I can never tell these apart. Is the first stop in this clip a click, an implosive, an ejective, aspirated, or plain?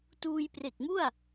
plain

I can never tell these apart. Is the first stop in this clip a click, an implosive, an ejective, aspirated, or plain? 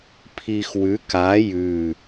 aspirated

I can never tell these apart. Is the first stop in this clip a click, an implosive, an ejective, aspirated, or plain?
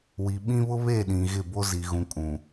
implosive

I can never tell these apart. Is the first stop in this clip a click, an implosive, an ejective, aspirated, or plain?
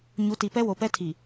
plain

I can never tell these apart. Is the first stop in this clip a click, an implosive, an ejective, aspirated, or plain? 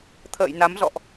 aspirated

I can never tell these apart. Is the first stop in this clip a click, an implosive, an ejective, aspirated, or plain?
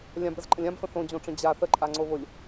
plain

